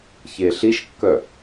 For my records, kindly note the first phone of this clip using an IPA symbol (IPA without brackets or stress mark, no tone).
ç